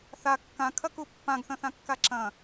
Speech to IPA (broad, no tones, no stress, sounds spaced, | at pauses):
θ a kː ã kʰ ɐ k u pː ã ɡ θ ɐ̃ θ ã kː a ǁ ɐ̃